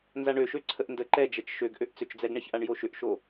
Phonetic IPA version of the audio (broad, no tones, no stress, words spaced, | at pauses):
nzaɳøʃø ǀʰəʔndə ǃɛd͡ʒɛt͡ʃ ʃøɡʔøʔ t͡sʏt͡ʃd͡zɛɡɳɛçʔaɳ joʃʏʔʃo